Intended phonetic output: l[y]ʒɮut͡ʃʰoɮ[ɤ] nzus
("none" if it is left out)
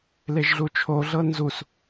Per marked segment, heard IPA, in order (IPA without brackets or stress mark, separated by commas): e, ɤ